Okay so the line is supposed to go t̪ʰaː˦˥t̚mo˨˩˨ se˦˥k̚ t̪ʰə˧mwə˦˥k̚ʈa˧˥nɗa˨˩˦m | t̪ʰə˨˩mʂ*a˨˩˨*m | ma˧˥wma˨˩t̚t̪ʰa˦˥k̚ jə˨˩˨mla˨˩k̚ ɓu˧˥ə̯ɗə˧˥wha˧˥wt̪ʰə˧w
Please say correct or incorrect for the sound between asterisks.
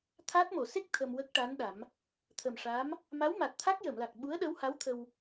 incorrect